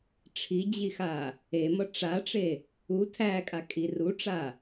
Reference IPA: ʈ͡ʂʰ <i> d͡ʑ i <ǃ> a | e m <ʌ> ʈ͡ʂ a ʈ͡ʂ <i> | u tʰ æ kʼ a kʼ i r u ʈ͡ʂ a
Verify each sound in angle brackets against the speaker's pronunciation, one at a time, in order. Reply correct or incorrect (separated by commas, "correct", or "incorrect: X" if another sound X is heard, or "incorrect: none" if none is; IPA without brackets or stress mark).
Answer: correct, incorrect: x, correct, incorrect: e